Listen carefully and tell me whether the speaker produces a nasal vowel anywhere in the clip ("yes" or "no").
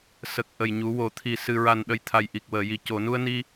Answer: no